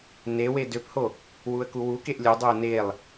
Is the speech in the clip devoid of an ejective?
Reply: yes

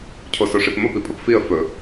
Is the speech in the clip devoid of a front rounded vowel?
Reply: yes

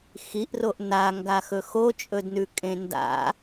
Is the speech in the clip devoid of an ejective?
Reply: no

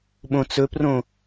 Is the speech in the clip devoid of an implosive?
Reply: no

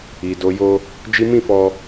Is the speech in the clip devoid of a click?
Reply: yes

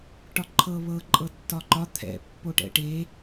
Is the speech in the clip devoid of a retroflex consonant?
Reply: no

